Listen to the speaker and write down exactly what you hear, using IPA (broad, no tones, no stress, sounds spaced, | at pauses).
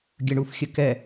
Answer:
ɡʲ ə ɳ u f xʲ ə k ɛ